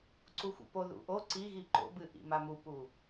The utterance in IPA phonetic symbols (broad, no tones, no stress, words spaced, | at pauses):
ǀuxʷḭpoðṵ ʔo ǀiɣi ǃo̰bɨ ʔḭmamupu